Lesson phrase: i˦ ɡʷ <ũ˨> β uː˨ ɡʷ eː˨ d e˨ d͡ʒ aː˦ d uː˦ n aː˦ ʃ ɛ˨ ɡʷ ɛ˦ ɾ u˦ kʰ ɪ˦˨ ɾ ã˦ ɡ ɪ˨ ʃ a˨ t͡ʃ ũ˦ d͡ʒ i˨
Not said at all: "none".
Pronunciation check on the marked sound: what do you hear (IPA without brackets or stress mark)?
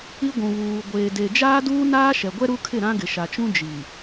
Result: ũ˨